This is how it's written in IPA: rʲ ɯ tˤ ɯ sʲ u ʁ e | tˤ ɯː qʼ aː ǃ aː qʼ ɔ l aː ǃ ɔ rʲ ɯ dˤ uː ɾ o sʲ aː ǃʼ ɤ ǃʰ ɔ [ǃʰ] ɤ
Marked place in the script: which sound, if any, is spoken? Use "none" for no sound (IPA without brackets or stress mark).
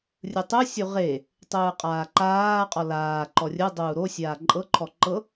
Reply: ǃ